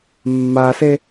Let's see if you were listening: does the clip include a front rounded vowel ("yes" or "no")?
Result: no